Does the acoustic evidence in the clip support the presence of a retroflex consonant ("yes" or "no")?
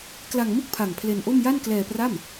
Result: no